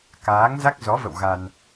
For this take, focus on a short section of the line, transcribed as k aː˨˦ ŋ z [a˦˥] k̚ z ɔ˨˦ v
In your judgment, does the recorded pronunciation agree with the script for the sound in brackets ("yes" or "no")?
yes